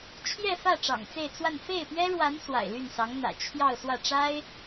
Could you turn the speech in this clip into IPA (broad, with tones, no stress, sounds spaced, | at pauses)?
t͡ɕʰ j ɛ˥˧ f ä˥˩ ʈ͡ʂ ɑ̰˨˩ ŋ t͡s e˥˧ ɪ̯ t͡s w a˥˧ n f e˥˩ ɪ̯ p ɥ ɛ˥ ɻ w a˧˥ n s w a̰˨˩ ɪ̯ l y˥˩ n s ɑ˧˥ ŋ n̪ ä̰˨˩ t͡ɕʰ j ɑ˥˧ ʊ̯ s w ä˥˩ ʈ͡ʂ a˥ ɪ̯